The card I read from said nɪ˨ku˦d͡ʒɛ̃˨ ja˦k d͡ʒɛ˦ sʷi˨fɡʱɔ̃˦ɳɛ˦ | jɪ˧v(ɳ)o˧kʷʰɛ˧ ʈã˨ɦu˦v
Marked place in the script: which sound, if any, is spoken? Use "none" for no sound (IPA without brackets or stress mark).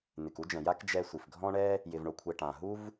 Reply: ɳ